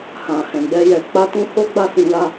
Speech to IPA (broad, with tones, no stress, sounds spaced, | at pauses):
h ã˨ h ɛ̃˨ ɡ͡b ɛ˧ j ɛ˨ k͡p a˧ t ũ˦ h o˦ ɡ͡b a˦˨ s ĩ˧ l a˧